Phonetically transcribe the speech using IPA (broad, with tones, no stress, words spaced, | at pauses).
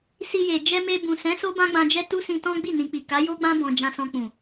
si˧je˨ d͡ʒɛ˧me˧bũ˨sɛ̃˨˦ so˦bã˦ɡ͡bã˧d͡ʒɛ˦ tu˦sĩ˧tɔ̃˦ ɡ͡bi˦˨nĩ˨k͡pi˨ ka˨˦jo˦ɡ͡bã˦ bɔ̃˧d͡ʒã˧sɔ̃˧k͡pũ˨